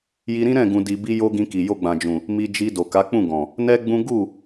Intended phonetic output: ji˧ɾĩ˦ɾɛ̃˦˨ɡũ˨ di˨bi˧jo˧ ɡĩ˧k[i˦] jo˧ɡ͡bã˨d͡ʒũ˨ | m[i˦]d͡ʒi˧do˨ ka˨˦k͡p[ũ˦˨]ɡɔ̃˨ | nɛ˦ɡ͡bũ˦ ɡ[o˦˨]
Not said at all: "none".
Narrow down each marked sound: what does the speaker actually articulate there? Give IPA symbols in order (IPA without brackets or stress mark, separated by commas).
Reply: i˨, i˧, ũ˦˨, u˦˨